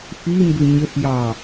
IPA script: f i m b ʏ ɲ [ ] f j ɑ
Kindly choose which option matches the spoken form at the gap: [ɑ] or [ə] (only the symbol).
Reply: ə